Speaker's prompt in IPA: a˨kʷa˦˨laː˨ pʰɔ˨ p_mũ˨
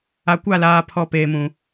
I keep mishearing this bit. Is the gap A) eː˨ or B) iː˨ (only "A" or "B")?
A